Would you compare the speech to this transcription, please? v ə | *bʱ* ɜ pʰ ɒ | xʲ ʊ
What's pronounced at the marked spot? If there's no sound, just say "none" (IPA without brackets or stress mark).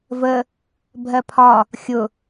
bʱ